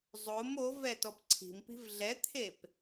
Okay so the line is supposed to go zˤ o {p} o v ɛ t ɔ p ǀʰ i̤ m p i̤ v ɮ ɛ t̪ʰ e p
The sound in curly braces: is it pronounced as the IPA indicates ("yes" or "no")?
no